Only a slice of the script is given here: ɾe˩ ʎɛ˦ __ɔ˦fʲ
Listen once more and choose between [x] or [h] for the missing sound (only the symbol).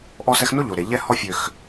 h